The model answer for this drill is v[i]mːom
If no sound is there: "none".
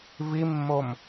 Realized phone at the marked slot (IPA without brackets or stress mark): i